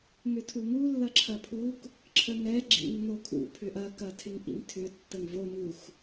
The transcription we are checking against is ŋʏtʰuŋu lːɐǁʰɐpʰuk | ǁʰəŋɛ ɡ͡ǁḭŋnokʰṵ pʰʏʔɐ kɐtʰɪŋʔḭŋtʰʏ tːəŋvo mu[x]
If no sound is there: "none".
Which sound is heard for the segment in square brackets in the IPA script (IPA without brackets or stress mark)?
x